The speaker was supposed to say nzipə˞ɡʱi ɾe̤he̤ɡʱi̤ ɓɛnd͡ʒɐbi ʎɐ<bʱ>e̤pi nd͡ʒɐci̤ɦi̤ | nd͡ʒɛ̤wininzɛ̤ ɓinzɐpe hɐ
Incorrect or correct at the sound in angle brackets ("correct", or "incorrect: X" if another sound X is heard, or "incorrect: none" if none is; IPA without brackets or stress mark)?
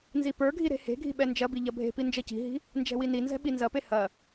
correct